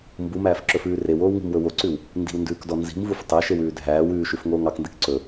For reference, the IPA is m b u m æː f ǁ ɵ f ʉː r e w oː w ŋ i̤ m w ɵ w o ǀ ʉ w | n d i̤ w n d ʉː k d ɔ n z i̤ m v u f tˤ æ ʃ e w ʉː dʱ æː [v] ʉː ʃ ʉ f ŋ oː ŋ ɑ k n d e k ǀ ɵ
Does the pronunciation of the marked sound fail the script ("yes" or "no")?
yes